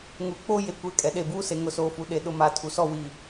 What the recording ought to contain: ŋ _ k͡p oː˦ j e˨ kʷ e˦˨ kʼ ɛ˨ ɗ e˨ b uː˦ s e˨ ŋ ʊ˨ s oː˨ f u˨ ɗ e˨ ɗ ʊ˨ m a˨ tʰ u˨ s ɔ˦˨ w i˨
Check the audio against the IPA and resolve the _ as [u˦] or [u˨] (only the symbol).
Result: u˨